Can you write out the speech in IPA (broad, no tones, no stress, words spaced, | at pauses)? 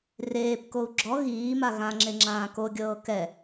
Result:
reːpkou̯ ɡ͡ǁɔ ɣiːma ɣãŋ͡ǁe ŋ͡ǁãːkoɡʲɤː kɛ